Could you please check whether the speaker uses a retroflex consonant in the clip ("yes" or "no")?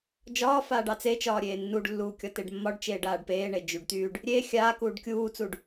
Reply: yes